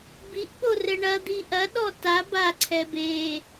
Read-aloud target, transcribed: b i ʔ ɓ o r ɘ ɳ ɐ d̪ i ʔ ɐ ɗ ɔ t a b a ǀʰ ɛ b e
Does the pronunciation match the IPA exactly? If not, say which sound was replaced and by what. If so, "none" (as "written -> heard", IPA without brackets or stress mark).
none